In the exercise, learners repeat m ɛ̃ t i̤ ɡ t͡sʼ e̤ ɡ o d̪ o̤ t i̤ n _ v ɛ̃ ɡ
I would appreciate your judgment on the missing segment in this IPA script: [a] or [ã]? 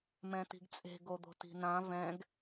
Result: ã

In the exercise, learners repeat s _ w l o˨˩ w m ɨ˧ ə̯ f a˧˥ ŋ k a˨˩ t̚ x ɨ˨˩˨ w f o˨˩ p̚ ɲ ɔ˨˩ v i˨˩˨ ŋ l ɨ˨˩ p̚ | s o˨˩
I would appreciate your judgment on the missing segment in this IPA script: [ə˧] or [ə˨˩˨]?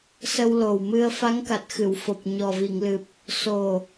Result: ə˧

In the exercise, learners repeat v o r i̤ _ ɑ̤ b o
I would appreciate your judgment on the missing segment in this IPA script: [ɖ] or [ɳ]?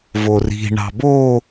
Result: ɳ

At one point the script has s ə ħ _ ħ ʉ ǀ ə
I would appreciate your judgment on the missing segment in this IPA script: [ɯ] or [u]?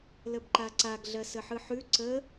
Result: ɯ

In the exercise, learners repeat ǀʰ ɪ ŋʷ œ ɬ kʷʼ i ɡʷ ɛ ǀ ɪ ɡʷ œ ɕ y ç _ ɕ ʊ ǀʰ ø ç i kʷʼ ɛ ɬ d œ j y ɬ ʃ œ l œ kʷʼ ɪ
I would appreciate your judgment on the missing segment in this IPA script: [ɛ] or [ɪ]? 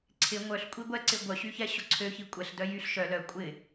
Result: ɛ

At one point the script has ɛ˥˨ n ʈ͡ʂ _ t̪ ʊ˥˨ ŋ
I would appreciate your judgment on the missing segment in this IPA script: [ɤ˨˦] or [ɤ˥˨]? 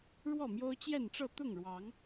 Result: ɤ˥˨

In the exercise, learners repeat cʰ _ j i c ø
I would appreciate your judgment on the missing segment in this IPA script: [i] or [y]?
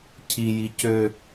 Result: i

